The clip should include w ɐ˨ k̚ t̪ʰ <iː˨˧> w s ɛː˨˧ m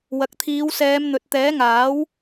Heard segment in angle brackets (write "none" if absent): iː˨˧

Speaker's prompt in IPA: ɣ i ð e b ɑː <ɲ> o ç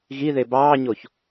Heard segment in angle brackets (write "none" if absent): ɲ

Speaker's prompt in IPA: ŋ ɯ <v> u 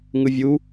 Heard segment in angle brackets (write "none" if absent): vʲ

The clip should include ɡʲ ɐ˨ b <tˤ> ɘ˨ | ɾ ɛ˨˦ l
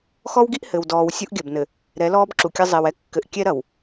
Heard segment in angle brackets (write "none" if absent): n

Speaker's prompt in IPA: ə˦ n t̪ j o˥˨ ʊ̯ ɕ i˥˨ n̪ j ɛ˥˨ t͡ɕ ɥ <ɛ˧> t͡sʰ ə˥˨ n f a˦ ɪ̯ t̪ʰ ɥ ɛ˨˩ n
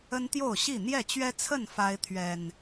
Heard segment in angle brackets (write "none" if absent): ɛ˦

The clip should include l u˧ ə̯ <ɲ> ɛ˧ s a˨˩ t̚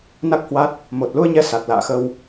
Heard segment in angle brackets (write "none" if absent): ɲ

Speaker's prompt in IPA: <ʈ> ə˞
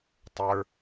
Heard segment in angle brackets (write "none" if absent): tˤ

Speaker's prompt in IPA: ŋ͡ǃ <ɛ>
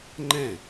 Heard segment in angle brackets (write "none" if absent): ɛ̃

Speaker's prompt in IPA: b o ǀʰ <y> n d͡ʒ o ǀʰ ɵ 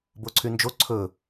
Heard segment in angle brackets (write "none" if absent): y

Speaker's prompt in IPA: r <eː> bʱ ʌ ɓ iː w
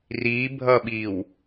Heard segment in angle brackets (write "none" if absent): iː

